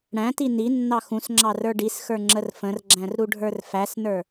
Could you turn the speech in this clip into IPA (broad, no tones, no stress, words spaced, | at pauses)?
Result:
ɽæ̃ti ni nːɑxũsŋ͡ǁɑ rə˞ɖisxə˞ ŋ͡ǁərfə̃rɡ͡ǁæ̃r ɾuɖʱə˞rfæsnə˞